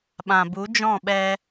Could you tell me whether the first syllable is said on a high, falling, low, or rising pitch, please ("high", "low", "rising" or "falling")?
low